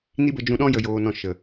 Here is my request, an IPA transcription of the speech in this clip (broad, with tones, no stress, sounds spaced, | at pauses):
n i˦ b ə˧ d͡ʒ ũ˧ ɗ ɔ̃˦ j ə˨ j oː˨ n ɔ̃˨ ʃ ə˨